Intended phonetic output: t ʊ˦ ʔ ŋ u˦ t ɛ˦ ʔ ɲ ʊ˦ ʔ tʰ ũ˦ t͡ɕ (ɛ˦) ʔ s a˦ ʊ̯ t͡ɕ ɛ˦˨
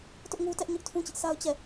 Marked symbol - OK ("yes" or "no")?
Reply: no